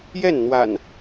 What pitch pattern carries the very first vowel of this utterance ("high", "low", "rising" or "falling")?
falling